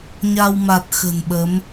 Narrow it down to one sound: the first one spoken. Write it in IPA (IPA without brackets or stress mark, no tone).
ɲ